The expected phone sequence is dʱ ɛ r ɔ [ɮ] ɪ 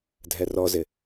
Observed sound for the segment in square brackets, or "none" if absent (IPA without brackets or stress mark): z